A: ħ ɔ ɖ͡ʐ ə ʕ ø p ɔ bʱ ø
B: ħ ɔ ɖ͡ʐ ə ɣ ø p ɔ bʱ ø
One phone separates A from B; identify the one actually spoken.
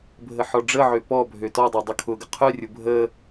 A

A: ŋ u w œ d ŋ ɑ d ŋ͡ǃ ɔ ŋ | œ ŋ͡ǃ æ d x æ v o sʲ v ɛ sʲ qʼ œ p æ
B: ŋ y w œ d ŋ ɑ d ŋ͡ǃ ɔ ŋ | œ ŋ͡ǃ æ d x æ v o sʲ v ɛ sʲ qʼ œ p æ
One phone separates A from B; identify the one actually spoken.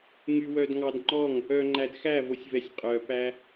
B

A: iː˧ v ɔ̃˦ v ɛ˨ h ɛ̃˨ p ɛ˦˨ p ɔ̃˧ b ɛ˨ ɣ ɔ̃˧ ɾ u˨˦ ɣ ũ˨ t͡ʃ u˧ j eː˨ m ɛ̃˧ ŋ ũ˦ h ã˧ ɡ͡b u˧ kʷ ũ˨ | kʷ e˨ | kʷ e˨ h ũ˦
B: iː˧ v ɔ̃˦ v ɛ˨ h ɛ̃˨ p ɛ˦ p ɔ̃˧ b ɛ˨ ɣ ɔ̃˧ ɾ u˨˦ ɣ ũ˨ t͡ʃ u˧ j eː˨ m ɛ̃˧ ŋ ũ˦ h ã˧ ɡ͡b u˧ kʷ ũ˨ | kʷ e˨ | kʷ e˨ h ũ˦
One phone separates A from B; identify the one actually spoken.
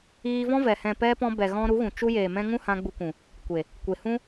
B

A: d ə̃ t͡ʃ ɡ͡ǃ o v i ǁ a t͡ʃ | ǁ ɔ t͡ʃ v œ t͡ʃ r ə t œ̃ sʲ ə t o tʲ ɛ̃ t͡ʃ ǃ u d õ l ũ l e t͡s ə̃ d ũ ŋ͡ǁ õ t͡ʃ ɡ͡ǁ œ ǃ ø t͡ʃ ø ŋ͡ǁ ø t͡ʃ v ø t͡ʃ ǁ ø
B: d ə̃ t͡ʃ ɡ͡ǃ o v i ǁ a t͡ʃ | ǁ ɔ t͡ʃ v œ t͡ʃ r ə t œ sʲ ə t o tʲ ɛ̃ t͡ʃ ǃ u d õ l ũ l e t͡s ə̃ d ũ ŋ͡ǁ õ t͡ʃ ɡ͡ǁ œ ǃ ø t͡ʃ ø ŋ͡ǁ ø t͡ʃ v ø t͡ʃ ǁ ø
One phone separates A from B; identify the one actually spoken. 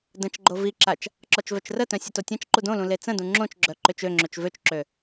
A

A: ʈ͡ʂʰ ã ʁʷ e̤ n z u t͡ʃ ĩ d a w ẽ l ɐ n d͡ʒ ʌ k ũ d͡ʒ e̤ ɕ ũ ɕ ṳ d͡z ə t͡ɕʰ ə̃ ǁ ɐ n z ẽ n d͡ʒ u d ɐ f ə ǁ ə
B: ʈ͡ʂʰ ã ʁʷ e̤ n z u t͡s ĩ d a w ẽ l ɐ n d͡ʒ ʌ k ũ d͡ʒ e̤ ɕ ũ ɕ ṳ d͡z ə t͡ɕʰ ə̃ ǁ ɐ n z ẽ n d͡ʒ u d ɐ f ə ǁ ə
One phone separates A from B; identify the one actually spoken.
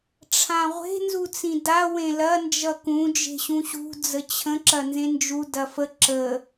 B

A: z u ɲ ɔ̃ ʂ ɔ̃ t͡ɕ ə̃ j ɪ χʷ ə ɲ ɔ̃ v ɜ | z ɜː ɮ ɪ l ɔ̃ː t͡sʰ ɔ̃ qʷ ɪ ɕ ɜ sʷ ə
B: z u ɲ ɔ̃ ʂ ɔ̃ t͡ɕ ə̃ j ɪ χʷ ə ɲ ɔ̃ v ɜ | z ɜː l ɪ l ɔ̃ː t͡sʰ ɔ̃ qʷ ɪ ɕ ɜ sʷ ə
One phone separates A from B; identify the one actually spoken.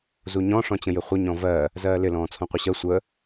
B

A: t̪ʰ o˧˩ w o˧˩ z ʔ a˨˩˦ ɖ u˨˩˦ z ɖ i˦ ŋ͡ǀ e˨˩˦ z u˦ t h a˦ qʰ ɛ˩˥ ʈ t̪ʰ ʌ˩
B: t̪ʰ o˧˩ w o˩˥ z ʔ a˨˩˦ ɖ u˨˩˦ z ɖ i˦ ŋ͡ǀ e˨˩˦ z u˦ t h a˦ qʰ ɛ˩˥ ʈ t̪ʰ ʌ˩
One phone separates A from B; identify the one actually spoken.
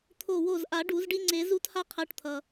A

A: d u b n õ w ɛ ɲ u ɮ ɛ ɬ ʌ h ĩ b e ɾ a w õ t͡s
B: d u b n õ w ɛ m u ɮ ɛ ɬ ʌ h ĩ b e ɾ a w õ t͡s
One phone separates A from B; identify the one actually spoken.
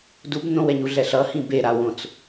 A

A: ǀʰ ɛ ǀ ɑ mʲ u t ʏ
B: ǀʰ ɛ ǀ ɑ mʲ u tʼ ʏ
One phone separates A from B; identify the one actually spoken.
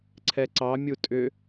B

